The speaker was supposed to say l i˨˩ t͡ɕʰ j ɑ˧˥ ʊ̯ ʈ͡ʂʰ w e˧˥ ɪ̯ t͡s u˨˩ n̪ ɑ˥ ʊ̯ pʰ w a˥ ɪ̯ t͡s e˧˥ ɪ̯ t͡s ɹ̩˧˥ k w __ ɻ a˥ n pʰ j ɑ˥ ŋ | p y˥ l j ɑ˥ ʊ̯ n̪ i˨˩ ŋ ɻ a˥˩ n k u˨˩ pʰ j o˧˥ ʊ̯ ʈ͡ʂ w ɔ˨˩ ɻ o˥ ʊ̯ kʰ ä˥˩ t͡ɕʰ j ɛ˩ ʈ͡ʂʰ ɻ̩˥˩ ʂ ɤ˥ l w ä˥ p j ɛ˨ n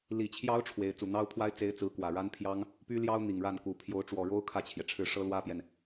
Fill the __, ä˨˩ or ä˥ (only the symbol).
ä˨˩